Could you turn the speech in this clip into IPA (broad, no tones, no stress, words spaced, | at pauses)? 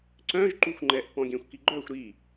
ǀœ̃ʒ ǃuxʷŋ͡ǃɛʔ pɔ̃ɡʲɛ̃xʷkiɡ͡ǃœxʷ ɾi